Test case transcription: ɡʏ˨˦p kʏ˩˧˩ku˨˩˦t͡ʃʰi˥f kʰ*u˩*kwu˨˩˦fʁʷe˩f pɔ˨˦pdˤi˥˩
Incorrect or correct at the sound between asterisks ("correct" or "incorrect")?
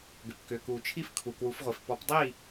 correct